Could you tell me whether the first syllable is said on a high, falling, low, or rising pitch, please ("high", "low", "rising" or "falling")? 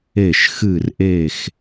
falling